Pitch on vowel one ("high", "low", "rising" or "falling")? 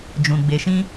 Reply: low